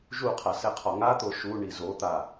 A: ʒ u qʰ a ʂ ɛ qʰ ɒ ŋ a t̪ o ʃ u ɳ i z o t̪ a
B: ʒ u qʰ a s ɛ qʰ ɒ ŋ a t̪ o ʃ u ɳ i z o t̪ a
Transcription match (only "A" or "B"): B